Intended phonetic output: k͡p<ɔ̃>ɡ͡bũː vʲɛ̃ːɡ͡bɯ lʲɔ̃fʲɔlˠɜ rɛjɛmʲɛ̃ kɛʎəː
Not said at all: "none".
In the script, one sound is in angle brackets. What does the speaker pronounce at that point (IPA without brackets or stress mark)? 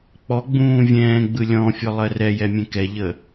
ɔ